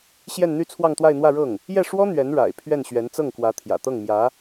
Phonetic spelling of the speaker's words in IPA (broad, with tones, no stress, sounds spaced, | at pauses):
ɕ j ɛ˥˧ n n̪ y˥˧ t͡sʰ w ɑ˥˧ ŋ t̪ w a˥˧ ɪ̯ n̪ w ä˥˧ ɻ ɤ˥˩ ŋ | j ɛ˥˩ ʂ w ɔ˥ n̪ ɥ ɛ˧˥ n ɻ a̰˨˩ ɪ̯ pʰ ɥ ɛ˥˩ n ɕ ɥ ɛ˧˥ n t͡s ɤ˥˩ ŋ k w ä˧˥ t̪ʰ j ä̰˨˩ t̪ ɤ˥˩ ŋ m j ä˧˥